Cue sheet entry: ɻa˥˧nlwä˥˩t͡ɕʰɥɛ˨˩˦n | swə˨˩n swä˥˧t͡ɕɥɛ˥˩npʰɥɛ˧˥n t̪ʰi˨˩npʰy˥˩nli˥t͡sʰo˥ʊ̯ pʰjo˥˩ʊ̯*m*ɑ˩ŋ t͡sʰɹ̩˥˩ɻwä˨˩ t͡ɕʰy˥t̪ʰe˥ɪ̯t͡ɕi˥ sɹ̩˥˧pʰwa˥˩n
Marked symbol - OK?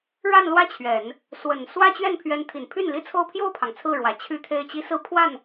no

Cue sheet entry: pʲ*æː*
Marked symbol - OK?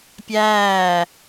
yes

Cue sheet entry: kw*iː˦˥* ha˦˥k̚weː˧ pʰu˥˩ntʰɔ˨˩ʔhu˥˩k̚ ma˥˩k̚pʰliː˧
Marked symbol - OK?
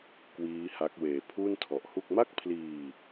yes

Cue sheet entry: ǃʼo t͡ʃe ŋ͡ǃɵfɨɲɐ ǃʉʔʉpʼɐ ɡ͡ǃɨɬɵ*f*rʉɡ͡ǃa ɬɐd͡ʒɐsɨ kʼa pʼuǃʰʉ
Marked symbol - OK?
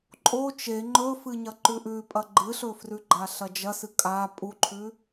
yes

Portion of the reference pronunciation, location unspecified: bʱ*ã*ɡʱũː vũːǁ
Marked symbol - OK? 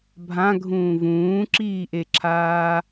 yes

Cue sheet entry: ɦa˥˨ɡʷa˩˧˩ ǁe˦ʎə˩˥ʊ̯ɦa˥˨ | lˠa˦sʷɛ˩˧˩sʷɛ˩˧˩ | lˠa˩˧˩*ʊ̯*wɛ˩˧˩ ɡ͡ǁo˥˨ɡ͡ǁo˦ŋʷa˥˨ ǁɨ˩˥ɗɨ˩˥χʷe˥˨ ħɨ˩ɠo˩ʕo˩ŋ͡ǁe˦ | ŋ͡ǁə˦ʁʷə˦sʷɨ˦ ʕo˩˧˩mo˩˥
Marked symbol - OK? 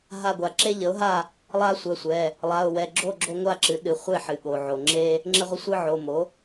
yes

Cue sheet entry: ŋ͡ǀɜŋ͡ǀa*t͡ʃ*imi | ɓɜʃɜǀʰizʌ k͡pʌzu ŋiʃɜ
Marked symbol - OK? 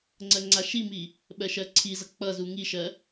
no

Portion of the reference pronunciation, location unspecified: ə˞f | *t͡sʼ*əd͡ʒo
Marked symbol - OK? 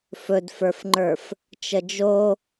no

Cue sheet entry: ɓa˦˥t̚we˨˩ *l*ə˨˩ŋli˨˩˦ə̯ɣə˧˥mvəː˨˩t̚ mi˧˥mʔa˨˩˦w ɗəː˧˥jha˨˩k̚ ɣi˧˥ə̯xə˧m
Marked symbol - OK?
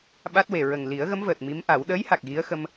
no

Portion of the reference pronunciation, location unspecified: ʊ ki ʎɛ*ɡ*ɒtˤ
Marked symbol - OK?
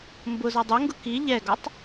yes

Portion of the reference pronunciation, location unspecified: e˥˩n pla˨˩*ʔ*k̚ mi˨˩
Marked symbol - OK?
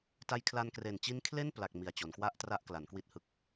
no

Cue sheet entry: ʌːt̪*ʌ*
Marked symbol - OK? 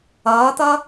yes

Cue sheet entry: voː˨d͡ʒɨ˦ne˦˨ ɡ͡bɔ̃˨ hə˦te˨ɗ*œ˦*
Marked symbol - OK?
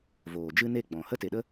no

